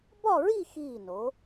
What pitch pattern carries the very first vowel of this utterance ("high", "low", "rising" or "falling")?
falling